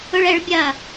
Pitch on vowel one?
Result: high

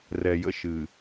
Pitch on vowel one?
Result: low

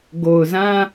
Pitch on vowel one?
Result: low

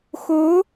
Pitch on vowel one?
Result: rising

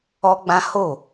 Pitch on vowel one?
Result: high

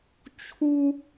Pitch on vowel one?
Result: high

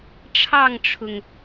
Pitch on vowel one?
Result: falling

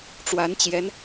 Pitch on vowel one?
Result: rising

